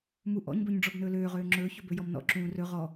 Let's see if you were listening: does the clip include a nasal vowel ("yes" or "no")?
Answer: yes